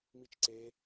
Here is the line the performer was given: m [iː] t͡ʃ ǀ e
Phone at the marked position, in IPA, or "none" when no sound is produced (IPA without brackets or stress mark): i